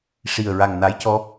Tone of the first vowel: low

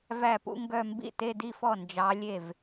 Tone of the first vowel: falling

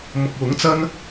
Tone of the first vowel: low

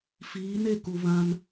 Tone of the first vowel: rising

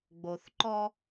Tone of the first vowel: low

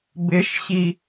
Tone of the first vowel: rising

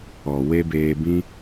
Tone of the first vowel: low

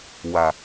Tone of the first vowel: low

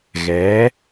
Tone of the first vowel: rising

